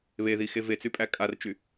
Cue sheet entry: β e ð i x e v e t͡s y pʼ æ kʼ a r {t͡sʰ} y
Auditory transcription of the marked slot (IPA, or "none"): t͡ʃ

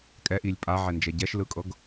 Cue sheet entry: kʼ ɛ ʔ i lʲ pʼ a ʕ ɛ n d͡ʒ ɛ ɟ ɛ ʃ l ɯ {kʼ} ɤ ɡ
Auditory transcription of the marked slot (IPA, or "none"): kʼ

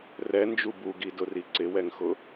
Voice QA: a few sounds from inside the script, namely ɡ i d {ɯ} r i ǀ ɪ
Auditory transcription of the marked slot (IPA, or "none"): ʊ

